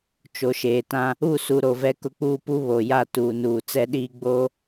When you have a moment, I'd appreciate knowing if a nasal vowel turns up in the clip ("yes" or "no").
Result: yes